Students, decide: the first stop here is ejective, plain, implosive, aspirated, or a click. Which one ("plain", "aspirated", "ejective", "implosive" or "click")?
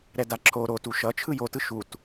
plain